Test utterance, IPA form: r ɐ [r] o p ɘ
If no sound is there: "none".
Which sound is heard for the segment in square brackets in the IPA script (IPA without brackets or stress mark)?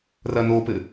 n